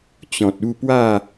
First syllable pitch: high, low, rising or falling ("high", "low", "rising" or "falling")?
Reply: low